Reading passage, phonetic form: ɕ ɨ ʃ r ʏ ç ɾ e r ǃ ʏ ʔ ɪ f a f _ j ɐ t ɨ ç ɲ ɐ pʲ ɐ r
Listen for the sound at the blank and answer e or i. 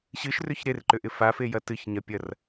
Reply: e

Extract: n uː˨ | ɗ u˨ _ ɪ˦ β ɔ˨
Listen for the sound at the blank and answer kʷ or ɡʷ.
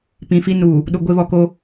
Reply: ɡʷ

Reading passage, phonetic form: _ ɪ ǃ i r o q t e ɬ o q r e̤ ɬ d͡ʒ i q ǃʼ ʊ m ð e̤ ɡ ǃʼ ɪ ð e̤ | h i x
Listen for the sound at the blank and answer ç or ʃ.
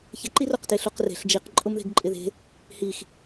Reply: ç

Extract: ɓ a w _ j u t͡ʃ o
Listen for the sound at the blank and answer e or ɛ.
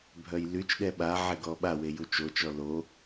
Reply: e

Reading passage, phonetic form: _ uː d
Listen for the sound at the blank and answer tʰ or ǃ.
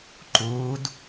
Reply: ǃ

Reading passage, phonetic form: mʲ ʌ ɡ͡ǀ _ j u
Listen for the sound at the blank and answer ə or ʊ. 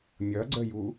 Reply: ə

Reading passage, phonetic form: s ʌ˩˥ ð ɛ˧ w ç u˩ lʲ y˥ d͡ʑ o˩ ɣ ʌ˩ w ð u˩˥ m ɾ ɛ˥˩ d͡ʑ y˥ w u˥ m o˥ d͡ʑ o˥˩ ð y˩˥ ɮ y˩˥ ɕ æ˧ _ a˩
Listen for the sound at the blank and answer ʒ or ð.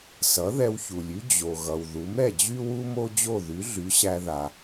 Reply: ð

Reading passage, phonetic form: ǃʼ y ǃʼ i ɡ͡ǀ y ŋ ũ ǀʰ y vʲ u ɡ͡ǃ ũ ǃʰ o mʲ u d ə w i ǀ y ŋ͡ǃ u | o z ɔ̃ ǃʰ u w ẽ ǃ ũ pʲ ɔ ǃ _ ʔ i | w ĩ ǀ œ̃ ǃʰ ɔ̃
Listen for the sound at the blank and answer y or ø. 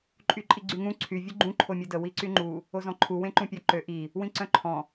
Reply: ø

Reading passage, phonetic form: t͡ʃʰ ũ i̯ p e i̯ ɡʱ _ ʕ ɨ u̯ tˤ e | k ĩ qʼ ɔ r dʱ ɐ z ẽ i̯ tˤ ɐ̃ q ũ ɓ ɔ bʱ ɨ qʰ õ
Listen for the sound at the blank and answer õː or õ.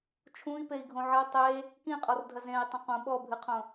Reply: õ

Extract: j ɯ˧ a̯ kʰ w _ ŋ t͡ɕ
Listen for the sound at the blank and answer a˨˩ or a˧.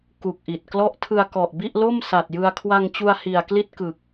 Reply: a˧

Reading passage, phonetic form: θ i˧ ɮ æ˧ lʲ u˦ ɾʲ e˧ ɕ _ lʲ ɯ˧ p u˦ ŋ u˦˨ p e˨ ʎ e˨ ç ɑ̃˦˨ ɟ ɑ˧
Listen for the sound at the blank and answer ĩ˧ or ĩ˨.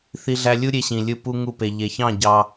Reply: ĩ˨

